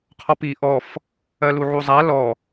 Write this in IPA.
qʰɔpi ʔɔf | ɜluʕuzˤa lɔ

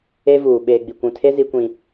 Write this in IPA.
e˦vuː˨ ɓeː˨ɡ͡bi˨kʷũ˨tʰe˦ zi˦kʷĩ˦

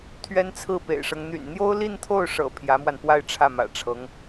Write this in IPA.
t̪ʰɥɛ˥nt͡sʰɹ̩˥˩pḛ˨˩ɪ̯ʂɤ˦ŋ n̪y̰˨˩nn̪jo˥ʊ̯ li˥˧nt̪ʰo˥˩ʊ̯ʂɤ̰˨˩ pʰjä˧˥mwa˧npwa˥˧ɪ̯ ʈ͡ʂʰä˥˩mä̰˨˩ʈ͡ʂʰɤ˧˥ŋ

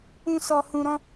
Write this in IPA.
ũ˦sɔ˧hũ˧ɾɔ̃˦

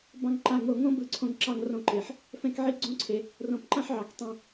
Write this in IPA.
bɑ̃˨ŋǃa˨ŋo˨ŋõ˦ bɯ˨ǀʰõ˨ŋǁɑ˨ŋrõ˨ ǃe˩ħ | fɛ̃˦kʕi˦ɡ͡ǀõ˥ǀʰe˩ | rõ˩pǃã˦ħ ʕɑ˩ktˤɛ̃˨

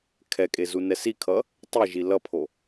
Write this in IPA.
kʰɛkʼe zunɛsikʰʌ | tˤiʒi lʌpʰo

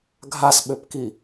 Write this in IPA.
ɡʱasɓøpki

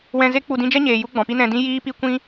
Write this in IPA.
wɛ̃˧ze˦k͡pu˧ dĩ˧d͡ʒɛ˦ɲeː˨ ju˦ɡ͡bɔ̃˨pi˦ nɛ̃˧dĩ˦ jiː˦pi˦ kʷĩ˦

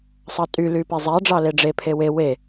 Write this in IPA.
sˤɑtʼy lypezˤæ ɖ͡ʐɑleɖ͡ʐe pʰewe we

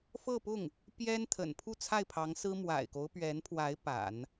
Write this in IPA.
fɤ˥˧pʊ˥˩ŋ | pjɛ˥n t̪ʰə̰˨˩n pʰu˥˧t͡sʰa˥˩ɪ̯pʰɑ˧˥ŋsɹ̩˥ mwa̰˨˩ɪ̯ko˦ʊ̯pɥɛ˧˥npʰwa˧˥ɪ̯ pa̰˨˩˦n

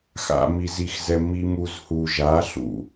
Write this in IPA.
xa̰˨mi˨zi˨xzɛ˨ mi˨m u˨zhu˨ʒa˨˦ ɬṵ˨

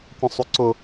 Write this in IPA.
kʷə̃sˤuǀʊ

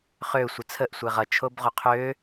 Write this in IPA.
χø sʷət͡sʰəʔ sʷɛʁʌ t͡ʃʰobʁoqʰø

